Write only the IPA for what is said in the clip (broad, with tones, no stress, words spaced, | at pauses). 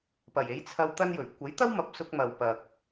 pɐ˨˩je˨˥j t͡sʰɐ˧w t̪ɐ˥njɵ˨˩ɥ kʷɐ˨˥jt̪ɐ˥w mɐ˨p̚sʊ˧k̚ mɐ˨wpɐ˨k̚